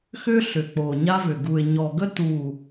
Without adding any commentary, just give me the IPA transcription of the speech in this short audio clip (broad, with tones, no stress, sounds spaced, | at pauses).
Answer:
x ʏ˦ ɬ ʏ˨ k͡p o˨ ɲ a˦ v ʏ˨ ɡ u˨ ɪ̯ ɲ ɔ˨ ɡ ə˦ t u˦˨